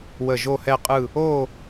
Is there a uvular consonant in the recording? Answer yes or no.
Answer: yes